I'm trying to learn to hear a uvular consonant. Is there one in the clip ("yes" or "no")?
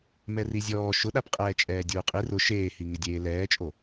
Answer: yes